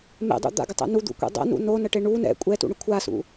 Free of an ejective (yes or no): no